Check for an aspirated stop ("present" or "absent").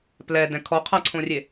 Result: present